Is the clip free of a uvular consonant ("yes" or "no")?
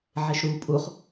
no